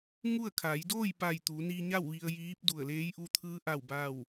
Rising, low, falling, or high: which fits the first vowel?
falling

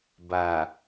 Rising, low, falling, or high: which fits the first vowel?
low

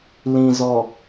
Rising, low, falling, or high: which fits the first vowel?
low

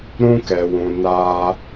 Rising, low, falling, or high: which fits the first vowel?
high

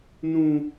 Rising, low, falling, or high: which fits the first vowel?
high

